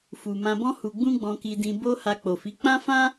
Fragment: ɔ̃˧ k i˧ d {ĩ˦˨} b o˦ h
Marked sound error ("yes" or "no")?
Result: yes